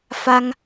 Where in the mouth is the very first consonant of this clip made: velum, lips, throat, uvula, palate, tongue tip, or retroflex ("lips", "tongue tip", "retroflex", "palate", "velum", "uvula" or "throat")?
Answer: lips